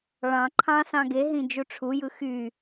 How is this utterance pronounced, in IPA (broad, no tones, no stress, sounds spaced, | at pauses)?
ɭ ɑ̃ ǃʰ ɑ̃ s ɑ̃ ɡ e ɦ ĩ d͡ʒ u ʈ͡ʂʰ u j ɯ x y